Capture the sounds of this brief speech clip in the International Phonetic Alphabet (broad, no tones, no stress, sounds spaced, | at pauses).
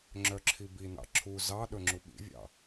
ŋ͡ǁ œ ǁʰ i b i n ɑ̰ ǁʰ u z ɑ ɗ ɵ ŋ͡ǁ u ɓ ḭ vʲ ɑ̰